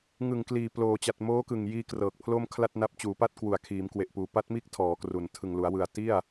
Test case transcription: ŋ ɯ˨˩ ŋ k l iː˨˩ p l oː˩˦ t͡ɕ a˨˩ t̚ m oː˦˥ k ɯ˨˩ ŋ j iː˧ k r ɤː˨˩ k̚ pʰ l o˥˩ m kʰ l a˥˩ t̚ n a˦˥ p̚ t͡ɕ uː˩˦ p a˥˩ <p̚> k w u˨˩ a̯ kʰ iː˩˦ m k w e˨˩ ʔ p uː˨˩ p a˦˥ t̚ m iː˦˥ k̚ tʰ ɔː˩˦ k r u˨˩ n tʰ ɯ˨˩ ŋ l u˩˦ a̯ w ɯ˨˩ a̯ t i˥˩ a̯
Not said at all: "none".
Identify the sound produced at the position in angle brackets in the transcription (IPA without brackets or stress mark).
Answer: t̚